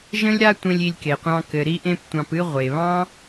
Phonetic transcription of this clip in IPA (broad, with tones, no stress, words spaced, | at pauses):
ʒə̃˦lʲɾa˦tʷẽ˧lʲ i˧lʲke˨qʷɑ̃˧ kɘ˨ɾi˧ʔẽ˧p tʷɑ̃˨pɨ˧ ʁʷe˨βɑ̃˦